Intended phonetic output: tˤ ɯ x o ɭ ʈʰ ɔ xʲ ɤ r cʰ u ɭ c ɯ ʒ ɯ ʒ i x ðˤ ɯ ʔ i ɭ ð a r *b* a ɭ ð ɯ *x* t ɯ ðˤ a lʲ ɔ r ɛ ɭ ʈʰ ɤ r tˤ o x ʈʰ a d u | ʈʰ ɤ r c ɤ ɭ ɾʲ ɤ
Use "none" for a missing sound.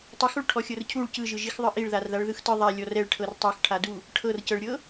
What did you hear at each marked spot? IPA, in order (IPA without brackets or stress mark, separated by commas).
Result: ð, x